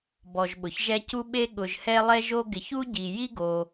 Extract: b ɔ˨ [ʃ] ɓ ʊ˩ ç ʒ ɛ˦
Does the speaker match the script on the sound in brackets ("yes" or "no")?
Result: no